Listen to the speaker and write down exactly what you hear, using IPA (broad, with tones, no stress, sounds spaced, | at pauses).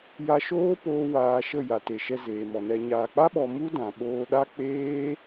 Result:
j a˧ ʃ oː˦ p oː˧ w aː˧ ʃ ə˦˨ j a˨ t e˨ ʃ ɛ˧ z eː˨ m ɔ˨ n ɛ˨ ɲ aː˨ k͡p a˦ ɓ ɔ˧ m u˦ d ã˨ ɓ oː˧ ɗ a˦ k͡p eː˦